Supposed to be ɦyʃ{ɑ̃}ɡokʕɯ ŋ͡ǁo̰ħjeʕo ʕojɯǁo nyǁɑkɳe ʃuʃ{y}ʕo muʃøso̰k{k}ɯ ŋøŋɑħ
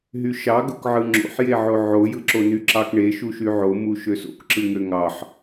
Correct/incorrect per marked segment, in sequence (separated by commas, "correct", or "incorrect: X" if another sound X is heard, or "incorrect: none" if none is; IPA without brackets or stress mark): incorrect: ɑ, correct, incorrect: ǁ